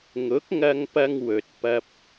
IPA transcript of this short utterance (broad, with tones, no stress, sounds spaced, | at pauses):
ŋ ʊ˨˥ k̚ ŋ ɐ˧ ŋ p ɐ˧ ŋ w ɵ˨ t̚ p ɐ˧ p̚